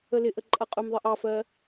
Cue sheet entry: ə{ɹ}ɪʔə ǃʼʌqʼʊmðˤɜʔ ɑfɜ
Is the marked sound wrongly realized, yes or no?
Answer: yes